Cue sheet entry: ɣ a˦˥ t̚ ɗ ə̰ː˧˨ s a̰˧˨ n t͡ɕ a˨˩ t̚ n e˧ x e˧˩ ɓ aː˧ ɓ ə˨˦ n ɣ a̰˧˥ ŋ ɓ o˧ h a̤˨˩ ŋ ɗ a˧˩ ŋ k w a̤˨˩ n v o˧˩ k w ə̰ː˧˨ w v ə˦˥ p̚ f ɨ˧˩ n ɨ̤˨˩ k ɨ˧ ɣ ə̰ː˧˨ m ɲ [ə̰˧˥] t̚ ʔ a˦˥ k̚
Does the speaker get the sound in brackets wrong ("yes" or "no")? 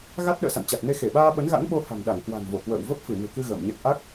yes